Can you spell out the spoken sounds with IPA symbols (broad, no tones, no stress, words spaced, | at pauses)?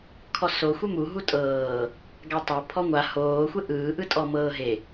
kʰɔso xʷemu ɦutʼɤː | ɡatˤa pʰɔŋʷa hoː xʷeʔɯː ʔɯtʼɔ mɤːɦe